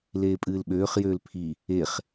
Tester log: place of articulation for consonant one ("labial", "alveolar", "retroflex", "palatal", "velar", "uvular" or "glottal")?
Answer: alveolar